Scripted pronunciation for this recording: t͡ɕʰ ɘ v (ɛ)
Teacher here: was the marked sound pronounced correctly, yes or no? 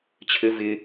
no